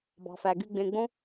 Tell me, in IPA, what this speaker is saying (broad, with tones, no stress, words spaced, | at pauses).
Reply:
bɑ̤˩fæ˩ɡy˨ ɡ͡bẽ˨ɡ͡bõ˦